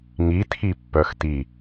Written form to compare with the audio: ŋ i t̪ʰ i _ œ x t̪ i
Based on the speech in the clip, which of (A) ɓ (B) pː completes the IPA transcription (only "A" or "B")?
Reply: B